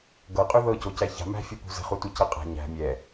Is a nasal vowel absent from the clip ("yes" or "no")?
yes